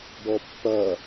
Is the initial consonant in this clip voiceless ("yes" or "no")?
no